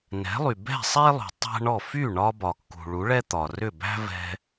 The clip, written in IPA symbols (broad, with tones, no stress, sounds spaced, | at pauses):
n ɛ̤˩˥ lˠ y˩ b ɛ̤˥˩ sˤ e˥ lˠ ṳ˩ tˤ æ̤˥ ɳ ɔ˥˩ f y˥˩ ɳ ɒ˧ b ɒ˩ kː ṳ˩ ɭ u˩˥ ɭ ɛ˥ t̪ ɒ˩ r ʏ˥˩ b æ̤˥ v ɛ̤˧